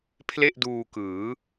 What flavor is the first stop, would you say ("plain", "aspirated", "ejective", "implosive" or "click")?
aspirated